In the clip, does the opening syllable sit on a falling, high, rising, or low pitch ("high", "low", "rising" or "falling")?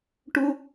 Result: high